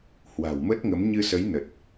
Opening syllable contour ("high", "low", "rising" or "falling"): low